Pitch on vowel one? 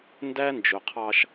high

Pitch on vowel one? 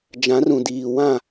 rising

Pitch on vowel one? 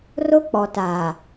high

